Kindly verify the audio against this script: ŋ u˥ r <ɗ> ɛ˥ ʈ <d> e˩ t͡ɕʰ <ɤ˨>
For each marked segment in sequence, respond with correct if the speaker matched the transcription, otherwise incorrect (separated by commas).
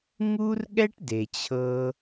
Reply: incorrect, correct, correct